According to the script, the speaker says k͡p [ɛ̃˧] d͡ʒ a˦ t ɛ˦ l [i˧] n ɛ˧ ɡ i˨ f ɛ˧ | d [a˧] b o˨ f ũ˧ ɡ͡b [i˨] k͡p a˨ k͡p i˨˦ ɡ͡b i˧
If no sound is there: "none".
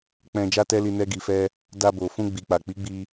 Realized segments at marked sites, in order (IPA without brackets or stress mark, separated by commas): ɛ̃˧, i˧, a˧, i˨